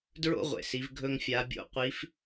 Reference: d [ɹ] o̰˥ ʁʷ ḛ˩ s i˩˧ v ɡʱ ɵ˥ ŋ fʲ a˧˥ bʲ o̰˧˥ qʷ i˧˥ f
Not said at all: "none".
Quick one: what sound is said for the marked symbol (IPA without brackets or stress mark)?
ɹ